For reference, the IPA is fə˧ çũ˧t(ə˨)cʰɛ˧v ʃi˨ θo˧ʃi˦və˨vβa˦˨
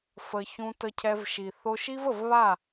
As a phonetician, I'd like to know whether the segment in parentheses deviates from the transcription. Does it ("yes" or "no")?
yes